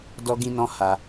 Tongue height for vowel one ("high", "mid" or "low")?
mid